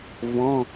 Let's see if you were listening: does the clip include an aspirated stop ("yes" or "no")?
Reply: no